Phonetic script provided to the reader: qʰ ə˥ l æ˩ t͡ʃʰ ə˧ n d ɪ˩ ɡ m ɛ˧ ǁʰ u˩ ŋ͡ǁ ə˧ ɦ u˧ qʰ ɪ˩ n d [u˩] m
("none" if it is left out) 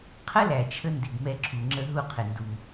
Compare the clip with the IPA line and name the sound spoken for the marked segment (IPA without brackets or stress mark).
u˩